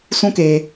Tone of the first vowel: high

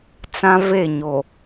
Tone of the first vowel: high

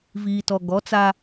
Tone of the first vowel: low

